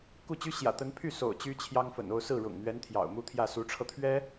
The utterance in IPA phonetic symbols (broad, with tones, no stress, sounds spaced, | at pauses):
k u˥˩ t͡ɕ y˥ ɕ j ä̰˨˩ t̪ ə˧˥ n pʰ y˥˩ s o̰˨˩ ʊ̯ t͡ɕ y˥ t͡ɕʰ j ɑ˥ ŋ f ə̰˨˩ n o˥˧ ʊ̯ s ɹ̩˥˩ ɻ ʊ̰˨˩ ŋ n̪ ɥ ɛ˧˥ n t̪ʰ j ɑ̰˨˩ ʊ̯ m u˥ t̪ʰ j ä˥˩ s u˧˥ ʈ͡ʂʰ ɤ˧ t̪ʰ ɥ ɛ˥